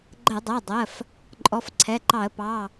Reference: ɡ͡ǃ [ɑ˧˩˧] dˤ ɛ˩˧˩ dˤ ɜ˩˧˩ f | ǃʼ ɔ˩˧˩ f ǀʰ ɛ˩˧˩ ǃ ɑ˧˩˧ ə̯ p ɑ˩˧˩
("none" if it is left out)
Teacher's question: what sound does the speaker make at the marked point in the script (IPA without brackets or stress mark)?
ə˧˩˧